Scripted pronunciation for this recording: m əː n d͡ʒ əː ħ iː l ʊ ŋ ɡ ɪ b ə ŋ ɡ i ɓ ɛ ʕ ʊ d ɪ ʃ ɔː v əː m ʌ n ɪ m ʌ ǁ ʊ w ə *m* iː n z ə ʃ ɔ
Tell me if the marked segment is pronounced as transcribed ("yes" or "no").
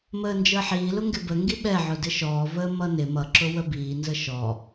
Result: no